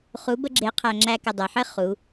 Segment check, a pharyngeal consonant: present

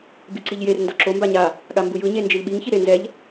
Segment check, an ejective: absent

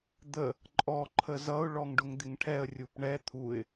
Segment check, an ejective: present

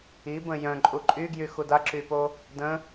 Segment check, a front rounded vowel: present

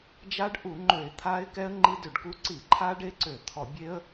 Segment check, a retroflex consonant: present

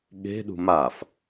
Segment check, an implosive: present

